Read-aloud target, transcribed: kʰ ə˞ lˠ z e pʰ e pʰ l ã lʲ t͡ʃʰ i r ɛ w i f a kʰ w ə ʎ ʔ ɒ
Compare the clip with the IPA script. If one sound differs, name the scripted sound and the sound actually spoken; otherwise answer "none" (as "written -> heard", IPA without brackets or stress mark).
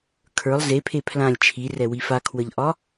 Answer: none